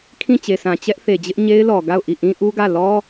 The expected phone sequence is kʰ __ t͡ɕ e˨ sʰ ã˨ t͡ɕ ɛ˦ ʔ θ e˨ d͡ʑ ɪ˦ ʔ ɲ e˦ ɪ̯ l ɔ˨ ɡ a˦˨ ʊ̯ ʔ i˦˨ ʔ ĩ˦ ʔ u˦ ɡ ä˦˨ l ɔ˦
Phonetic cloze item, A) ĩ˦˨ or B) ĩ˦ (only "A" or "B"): A